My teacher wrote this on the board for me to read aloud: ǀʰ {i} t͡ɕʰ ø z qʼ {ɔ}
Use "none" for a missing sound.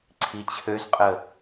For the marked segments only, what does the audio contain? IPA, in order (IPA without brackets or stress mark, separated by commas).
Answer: i, ə